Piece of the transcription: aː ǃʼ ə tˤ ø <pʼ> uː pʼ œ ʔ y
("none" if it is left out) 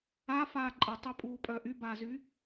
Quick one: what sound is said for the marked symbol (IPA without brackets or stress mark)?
pʼ